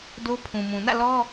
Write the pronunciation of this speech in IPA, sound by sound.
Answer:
do˦pʰũ˨mũ˨ nä̰˦˨lɔ˦

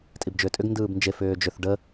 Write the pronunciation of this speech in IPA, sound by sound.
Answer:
tʼibd͡ʒʏːtʼʏɡ ndɯːbnd͡ʒe fʏːd͡ʒʏθ ɖə

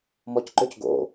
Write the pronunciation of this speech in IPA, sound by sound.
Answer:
mɔcǃøc ɡo̰

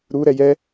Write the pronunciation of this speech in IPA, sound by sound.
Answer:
ɾuɾɛ jɛ

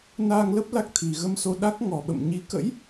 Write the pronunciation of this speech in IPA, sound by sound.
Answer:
naː˧ŋlə˦˥p̚ la˦˥k̚t̪ʰi˨˩ ɣə˧mso˧ɗa˦˥k̚ ŋɔ˨˩ɓə̰˧˨m ɲi˨˦kə̰˧˥j

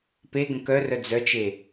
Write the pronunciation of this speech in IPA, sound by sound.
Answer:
peɡə̃ kœrœ d͡zœt͡ʃe

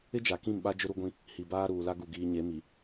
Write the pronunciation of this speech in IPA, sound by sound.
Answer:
ɪ˦d͡ʒa˨kĩ˦˨mɓa˦ d͡ʒʊ˦ɾu˦ɡʷĩ˦ | hi˨baː˦ ɾuː˨la˦ ɡu˨ɡiː˨ɲe˨˦mi˨

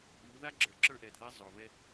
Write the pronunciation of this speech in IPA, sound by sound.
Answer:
ʔu˨˦ ða˦ɡ͡ǁə˞˨ ǁə˞˦ʔɛ˨d ðɛ˦zˤo˨vɛ˦

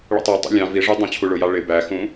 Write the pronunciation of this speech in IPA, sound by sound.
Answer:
ɭə̰tˤɜtˤə̰ lʲɑ̃ viʐu dˤɑ̃t͡ɕʰuɭʊjɑ ɭɪ bæxũ

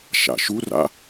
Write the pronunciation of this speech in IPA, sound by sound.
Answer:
ʃa̰ʃura̰

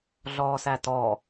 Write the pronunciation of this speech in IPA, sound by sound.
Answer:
ɮɔːsætɔ

